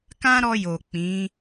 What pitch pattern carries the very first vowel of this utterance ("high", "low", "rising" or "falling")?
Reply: high